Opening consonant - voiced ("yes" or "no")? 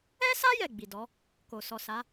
no